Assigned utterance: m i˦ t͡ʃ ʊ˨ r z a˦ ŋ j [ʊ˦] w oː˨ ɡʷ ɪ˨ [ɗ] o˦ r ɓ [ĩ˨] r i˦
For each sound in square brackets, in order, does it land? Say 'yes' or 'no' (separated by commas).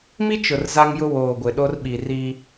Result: yes, yes, no